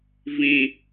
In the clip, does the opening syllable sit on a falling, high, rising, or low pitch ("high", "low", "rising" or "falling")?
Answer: low